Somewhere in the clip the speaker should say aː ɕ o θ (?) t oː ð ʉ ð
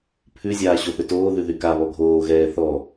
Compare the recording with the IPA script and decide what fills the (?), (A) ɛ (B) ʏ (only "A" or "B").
B